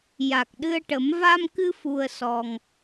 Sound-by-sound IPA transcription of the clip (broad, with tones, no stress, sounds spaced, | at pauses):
j a˨˩ k̚ ɗ ɨ˧ ə̯ ʈ ə˨˩˦ m v a˧ m k ɨ˧ f u˧ ə̯ s ɔ˧ ŋ